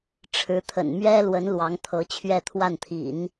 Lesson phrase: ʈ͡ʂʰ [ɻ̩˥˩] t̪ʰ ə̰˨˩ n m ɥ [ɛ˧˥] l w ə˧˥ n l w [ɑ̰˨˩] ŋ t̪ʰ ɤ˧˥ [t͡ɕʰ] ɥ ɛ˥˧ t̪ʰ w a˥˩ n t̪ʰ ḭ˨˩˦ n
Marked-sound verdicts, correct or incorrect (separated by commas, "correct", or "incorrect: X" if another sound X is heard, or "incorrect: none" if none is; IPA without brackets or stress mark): incorrect: ɻ̩˧˥, incorrect: ɛ˥, incorrect: ɑ˧˥, correct